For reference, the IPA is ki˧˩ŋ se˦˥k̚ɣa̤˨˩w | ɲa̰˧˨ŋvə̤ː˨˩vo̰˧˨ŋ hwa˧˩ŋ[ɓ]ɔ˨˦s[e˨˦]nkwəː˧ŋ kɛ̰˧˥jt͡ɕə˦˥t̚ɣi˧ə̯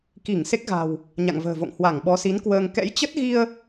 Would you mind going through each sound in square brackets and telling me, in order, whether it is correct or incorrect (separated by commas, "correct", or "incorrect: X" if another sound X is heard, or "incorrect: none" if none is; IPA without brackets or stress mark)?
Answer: correct, incorrect: i˨˦